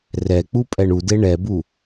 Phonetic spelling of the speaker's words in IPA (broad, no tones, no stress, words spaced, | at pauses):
rɛk͡pupʼɛɳ ude ɳɛbu